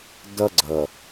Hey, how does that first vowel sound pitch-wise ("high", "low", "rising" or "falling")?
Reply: high